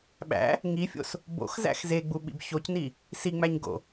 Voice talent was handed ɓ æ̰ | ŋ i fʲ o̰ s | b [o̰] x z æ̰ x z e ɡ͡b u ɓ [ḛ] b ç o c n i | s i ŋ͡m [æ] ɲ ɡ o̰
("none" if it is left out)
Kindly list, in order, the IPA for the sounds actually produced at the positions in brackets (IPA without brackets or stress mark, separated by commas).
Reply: o̰, ḭ, æ